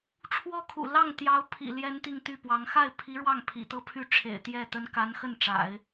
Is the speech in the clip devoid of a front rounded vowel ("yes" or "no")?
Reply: no